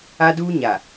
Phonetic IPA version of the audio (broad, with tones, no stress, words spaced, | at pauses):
a˦duː˦ɲa˨